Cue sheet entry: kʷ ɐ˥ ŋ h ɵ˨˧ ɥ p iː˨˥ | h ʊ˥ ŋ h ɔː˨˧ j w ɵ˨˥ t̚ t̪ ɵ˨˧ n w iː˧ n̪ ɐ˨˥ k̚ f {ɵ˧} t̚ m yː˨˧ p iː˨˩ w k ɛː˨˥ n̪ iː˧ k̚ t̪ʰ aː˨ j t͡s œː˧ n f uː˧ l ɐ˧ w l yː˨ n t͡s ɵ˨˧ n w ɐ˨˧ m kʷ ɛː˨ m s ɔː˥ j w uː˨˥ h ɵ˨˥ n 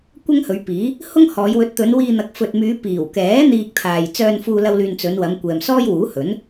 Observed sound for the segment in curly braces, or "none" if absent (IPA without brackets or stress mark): ɵ˨